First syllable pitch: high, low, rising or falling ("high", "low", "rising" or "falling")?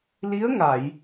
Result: rising